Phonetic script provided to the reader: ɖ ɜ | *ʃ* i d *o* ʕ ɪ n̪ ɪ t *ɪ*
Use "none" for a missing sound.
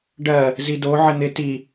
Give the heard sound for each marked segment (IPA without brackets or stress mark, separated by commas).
z, o, i